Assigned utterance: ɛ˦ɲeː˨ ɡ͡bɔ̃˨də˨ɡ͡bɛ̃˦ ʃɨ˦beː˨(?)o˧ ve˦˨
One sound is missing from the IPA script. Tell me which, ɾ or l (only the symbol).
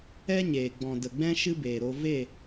ɾ